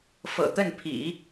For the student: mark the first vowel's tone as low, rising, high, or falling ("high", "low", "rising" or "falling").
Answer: low